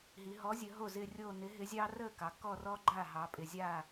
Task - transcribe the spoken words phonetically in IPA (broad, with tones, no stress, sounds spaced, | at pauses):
ɦ i˩˧ ɦ ɔ˨˥ zʲ ə˩˧ ɦ o˥˩ z ɪ˥˧ rʲ o˥˧ n ɪ˨˥ ɦ ɪ˨˥ zʲ ɑ˥ r ə˥˩ k ɑ˩ k ɔ˥˧ r ɔ˥ ɡ͡ǃ a˥˩ ɦ ɑ˩˧ pʼ ɪ˩ zʲ a˥˩